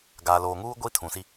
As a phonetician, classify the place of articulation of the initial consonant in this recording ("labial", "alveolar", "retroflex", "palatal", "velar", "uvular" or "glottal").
velar